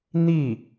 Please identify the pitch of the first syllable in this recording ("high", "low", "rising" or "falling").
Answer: falling